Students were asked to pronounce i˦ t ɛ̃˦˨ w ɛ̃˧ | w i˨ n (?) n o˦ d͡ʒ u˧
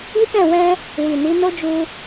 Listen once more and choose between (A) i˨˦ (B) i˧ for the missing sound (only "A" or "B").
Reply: A